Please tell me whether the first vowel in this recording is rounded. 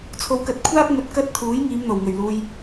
yes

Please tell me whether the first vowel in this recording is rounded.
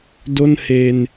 yes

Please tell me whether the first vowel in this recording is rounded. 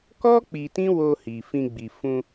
yes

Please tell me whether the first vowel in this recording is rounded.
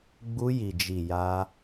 yes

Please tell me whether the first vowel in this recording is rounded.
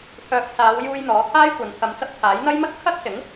yes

